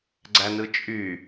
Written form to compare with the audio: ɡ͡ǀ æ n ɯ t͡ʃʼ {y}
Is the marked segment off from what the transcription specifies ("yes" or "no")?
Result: no